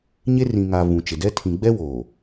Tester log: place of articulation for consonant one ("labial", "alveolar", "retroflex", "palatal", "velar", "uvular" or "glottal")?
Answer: palatal